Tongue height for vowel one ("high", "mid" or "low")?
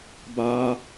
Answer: low